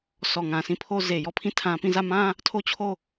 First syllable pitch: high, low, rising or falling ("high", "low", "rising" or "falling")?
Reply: low